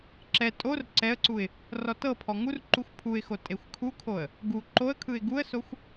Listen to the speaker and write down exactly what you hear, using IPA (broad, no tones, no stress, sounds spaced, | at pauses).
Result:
ǁ ɛ tʼ o r ǀ ɛ ə̯ ǀ u ɪ̯ | r ɔ t ɤ pʰ ɔ ŋ u r ǃ u xʷ pʰ u ɪ̯ x o tʼ e xʷ kʰ u kʰ o ə̯ | ɡ u ǃ o ə̯ kʰ ɯ ɪ̯ ɡ u ə̯ s o xʷ